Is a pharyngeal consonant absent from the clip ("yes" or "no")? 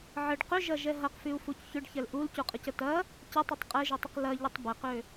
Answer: no